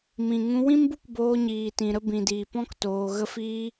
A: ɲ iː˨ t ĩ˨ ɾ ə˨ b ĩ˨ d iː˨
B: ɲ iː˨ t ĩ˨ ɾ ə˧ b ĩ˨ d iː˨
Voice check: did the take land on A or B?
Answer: B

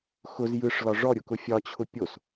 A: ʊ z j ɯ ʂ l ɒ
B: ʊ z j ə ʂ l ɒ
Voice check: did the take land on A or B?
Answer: A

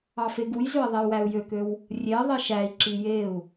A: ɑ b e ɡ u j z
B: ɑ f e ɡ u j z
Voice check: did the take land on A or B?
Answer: B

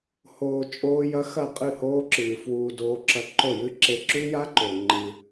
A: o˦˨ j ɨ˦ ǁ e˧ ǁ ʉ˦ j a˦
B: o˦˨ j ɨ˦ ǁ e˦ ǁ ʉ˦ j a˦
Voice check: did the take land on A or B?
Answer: B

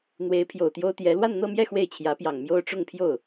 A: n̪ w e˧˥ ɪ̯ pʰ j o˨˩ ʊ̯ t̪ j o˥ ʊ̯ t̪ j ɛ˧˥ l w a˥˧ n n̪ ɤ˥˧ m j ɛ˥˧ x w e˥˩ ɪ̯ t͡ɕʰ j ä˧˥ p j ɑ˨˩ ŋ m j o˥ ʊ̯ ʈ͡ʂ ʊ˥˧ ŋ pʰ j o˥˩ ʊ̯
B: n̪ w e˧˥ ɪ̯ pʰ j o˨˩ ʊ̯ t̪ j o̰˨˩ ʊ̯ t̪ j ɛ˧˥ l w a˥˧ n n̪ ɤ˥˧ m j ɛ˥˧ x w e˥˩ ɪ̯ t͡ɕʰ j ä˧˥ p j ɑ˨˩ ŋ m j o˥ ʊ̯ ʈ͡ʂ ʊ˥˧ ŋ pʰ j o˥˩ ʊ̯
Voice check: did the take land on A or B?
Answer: A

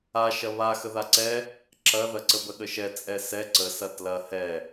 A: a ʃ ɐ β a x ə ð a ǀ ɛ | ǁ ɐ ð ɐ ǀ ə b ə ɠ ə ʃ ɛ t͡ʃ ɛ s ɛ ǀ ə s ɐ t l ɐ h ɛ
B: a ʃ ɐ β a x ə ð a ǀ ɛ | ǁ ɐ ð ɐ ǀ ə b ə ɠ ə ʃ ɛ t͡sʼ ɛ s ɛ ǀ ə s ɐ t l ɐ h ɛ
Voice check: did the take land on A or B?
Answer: B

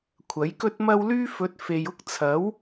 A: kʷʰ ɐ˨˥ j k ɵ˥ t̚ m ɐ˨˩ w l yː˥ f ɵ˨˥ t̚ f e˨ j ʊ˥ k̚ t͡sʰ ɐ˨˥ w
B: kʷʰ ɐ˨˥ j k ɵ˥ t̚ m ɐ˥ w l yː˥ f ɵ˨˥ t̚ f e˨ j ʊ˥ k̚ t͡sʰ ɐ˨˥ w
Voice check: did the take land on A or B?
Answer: B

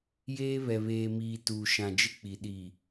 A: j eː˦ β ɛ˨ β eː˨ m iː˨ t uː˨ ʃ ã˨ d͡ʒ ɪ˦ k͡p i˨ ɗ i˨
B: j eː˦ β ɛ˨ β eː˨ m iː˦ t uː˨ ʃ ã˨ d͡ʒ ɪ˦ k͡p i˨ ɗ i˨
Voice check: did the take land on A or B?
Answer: A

